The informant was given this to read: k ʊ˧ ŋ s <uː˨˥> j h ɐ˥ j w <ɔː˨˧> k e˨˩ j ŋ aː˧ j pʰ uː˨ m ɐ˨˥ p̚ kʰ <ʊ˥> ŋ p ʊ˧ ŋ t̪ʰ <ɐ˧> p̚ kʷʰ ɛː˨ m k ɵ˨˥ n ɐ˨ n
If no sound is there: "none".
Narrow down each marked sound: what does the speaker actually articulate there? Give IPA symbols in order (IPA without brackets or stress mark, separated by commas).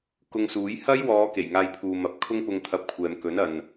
uː˨˥, ɔː˨˧, ʊ˥, ɐ˧